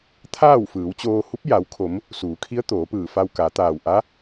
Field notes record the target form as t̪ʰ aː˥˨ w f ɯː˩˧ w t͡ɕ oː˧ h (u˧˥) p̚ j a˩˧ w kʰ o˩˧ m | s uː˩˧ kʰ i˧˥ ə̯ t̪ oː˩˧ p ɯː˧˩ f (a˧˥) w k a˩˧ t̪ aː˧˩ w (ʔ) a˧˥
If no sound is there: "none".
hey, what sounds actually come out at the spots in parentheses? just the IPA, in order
u˧˥, a˧, ʔ

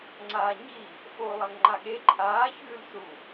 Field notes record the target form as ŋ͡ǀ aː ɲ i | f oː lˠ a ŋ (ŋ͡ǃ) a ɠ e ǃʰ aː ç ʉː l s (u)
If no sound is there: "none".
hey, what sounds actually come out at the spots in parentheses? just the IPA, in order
ŋ͡ǃ, u

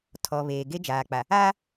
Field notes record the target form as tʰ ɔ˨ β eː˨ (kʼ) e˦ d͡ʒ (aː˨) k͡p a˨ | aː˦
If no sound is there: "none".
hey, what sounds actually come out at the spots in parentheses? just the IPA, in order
ɡ, aː˨

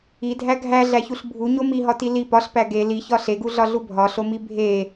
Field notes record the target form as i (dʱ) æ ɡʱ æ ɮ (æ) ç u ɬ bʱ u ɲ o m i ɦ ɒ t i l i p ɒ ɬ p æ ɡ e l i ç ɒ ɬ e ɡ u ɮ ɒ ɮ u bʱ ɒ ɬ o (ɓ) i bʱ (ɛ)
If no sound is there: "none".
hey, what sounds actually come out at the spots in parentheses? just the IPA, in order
dʱ, æ, m, e

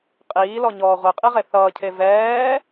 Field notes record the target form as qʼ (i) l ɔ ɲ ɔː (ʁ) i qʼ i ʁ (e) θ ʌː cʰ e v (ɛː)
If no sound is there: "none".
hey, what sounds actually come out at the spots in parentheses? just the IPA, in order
iː, ʁʷ, e, ɛː

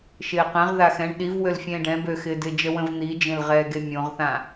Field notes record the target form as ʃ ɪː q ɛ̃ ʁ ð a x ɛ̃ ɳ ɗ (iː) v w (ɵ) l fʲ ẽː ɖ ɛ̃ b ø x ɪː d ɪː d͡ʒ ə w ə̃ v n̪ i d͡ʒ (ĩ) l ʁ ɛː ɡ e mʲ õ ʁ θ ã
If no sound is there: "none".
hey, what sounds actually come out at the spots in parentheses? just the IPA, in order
i, ø, ẽ

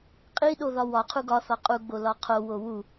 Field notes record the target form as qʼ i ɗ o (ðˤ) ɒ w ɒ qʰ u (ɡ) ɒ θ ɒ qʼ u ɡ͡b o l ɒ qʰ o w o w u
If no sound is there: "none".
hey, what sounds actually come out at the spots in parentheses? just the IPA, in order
ð, ɡ

